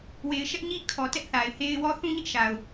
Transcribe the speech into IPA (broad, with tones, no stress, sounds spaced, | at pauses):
w e˨ ɪ̯ ʃ ɛ˦ ʔ ɲ i˦ kʰ ɔ˨ t ɛ˦ ʔ θ a˨ ɪ̯ h e˦ ɪ̯ w ɔ˦ θ ũ˦ ɲ ɪ˦ ʔ ʃ a˨ ʊ̯